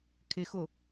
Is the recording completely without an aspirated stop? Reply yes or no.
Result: no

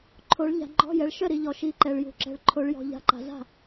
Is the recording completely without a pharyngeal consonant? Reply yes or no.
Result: yes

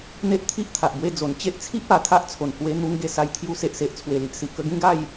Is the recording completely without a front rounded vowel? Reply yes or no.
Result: yes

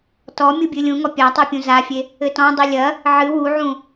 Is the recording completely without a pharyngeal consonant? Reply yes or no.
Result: no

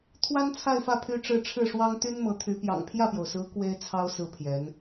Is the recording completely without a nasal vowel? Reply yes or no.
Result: yes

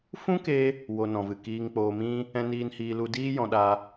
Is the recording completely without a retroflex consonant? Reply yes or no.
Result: yes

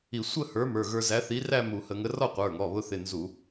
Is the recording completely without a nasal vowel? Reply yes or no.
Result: yes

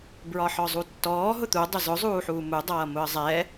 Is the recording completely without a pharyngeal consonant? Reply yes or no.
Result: no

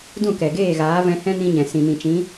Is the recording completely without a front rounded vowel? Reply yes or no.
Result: yes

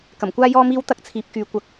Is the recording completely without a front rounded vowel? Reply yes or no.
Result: no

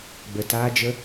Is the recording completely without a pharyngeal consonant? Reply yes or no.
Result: yes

